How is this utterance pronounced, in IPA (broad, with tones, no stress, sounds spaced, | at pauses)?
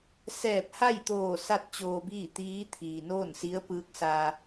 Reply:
s ɛː˧˩ p̚ h a˥˨ j t̪ oː˧˩ s a˥˨ t̚ t͡ɕ oː˧ b iː˥˨ t̪ iː˧˥ t̪ʰ iː˩ n oː˥˨ n s i˧˥ ə̯ p ɯː˧˥ k̚ s a˧